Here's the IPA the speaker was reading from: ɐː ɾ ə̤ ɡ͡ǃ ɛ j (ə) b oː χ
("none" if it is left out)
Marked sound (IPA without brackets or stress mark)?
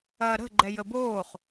ə